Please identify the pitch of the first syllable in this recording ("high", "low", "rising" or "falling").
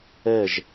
falling